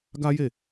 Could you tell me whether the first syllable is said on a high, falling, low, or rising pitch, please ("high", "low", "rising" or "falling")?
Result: high